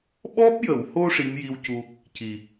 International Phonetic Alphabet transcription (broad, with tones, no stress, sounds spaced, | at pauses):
ɓ ɔ˦˥ p̚ j ə˨˩˨ w h o˧ ʂ i˧˥ m j i˧ w c u˧ | c i˨˩